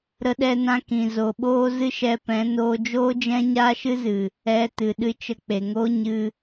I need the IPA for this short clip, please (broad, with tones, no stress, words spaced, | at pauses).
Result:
ɾə˧ ɗɛ˧nã˧kĩ˨ zo˨ɓoː˦ zɨ˦ʃɛ˧pɛ̃˨˦ noː˧d͡ʒoː˦d͡ʒɛ̃˦ ɲaː˦ʃɨ˦zɨ˨ | ɛ˧ tɨ˨ɗɨ˧ t͡ʃə˧k͡pe˨ŋoː˦ ɲɨ˧